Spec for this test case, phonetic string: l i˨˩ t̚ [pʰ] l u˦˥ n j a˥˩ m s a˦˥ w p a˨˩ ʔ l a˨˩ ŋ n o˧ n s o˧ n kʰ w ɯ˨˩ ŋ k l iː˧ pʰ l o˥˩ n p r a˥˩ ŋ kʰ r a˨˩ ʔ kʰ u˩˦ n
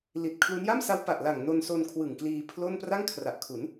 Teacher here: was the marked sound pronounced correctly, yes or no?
no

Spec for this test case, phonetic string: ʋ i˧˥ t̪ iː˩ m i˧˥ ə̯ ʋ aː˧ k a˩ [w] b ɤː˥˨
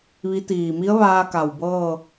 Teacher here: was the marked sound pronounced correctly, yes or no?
yes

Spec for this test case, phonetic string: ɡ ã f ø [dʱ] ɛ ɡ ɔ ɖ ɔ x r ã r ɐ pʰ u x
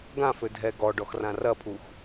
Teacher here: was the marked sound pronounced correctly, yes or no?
yes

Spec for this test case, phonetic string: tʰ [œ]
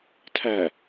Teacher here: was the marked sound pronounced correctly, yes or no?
no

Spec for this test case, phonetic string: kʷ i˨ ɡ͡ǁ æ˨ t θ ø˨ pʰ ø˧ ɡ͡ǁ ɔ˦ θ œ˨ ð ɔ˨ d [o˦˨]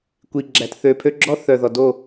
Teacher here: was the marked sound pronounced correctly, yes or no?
yes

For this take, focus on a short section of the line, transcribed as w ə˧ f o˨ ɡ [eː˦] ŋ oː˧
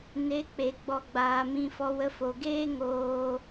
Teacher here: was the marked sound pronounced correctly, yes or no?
yes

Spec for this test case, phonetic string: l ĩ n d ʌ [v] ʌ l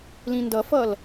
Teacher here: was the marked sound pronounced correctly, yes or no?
no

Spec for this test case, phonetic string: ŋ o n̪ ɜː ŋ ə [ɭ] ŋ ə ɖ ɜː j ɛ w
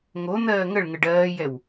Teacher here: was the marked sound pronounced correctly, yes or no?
yes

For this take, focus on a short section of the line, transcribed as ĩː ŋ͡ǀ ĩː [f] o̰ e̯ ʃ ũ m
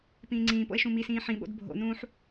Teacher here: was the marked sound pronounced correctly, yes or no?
no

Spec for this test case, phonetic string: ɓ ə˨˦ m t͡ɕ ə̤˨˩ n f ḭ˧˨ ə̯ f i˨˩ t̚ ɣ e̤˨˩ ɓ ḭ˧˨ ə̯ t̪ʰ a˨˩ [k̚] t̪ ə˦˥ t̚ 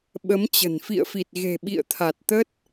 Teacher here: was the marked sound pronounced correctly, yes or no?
no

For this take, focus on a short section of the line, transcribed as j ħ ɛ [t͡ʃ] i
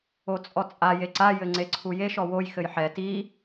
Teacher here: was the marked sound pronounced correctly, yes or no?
no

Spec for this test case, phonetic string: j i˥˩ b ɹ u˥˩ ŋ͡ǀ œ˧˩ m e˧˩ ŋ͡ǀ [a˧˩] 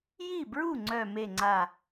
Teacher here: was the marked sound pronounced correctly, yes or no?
yes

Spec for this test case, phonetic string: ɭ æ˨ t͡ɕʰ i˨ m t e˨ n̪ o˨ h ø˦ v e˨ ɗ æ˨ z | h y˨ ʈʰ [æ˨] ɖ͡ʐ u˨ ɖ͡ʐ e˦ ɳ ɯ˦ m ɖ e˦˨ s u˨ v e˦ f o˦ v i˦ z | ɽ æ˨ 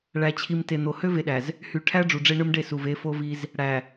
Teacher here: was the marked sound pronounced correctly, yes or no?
no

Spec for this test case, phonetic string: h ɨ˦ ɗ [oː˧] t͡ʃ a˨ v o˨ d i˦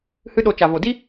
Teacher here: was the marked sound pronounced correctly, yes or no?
no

